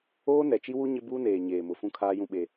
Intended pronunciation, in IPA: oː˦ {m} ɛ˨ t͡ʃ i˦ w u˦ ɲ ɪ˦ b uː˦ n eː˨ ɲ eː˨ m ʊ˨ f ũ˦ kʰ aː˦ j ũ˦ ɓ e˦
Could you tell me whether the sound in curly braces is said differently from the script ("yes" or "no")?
yes